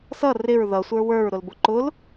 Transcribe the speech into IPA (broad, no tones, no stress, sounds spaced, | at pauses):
s ʌ r ɪ ɹ ð ʌ sʷ ə˞ w ə˞ ɹ ɾ ʊ l b ʊ ǃ ʊ l